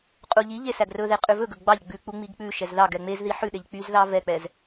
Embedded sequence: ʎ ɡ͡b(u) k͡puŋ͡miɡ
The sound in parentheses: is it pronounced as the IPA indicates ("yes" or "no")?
no